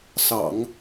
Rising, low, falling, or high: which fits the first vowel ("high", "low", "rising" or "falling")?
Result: low